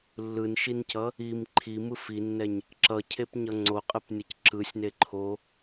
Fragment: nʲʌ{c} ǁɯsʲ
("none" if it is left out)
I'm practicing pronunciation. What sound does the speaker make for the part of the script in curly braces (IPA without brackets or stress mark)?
c